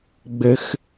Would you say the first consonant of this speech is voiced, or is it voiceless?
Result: voiced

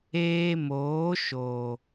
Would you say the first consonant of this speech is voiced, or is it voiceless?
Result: voiced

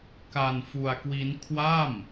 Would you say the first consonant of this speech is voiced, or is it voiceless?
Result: voiceless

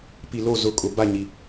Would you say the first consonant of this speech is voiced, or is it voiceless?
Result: voiceless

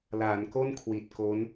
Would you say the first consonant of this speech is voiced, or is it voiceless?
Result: voiced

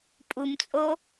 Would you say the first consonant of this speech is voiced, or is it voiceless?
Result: voiceless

